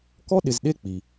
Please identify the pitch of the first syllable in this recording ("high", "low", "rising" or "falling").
high